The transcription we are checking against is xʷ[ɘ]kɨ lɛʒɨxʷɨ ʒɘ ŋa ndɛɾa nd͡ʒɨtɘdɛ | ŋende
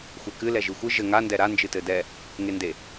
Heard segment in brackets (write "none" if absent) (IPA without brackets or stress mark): ɛ